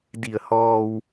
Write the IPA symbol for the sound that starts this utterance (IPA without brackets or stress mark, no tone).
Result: d